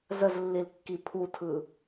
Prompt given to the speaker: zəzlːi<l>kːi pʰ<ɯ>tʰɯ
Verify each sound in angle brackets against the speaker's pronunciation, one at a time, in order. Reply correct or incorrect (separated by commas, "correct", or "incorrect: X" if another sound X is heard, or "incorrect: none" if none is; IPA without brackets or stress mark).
correct, incorrect: u